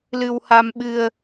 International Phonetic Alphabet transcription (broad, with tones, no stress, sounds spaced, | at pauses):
l ɨ˧ w h a˧ m ɓ ɨ˧ ə̯